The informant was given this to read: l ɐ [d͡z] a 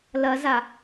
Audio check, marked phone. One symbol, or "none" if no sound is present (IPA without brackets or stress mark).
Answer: z